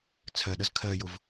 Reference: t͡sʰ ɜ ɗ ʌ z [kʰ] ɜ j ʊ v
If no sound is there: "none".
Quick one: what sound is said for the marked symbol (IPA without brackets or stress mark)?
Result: kʰ